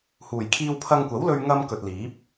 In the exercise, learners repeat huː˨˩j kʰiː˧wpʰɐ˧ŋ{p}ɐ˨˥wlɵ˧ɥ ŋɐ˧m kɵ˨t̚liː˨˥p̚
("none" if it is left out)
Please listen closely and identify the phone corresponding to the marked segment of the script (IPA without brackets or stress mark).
kʷ